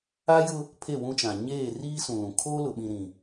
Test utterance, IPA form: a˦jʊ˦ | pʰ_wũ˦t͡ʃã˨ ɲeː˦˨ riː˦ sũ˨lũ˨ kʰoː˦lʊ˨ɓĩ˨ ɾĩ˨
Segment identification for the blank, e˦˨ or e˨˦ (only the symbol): e˦˨